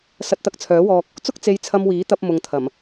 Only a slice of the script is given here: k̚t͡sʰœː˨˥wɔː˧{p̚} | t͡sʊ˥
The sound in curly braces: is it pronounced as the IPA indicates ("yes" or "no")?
no